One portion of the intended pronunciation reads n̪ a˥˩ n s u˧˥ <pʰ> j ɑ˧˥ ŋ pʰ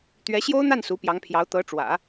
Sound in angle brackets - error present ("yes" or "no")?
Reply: yes